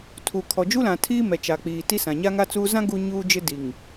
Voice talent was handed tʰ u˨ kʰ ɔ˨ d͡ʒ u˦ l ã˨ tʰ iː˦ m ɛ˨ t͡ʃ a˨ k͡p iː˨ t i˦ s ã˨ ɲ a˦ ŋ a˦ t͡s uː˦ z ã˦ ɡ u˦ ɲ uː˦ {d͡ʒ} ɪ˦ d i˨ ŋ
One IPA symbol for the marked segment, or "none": d͡ʒ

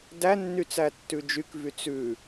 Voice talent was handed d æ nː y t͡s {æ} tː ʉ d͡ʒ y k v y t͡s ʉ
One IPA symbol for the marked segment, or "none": æ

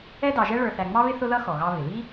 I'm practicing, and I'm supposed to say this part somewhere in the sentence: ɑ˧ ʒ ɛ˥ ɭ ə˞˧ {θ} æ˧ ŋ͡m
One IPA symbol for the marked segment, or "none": θ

